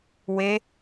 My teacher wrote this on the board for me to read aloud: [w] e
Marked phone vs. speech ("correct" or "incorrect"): correct